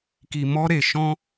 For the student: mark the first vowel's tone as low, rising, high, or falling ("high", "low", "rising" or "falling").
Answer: low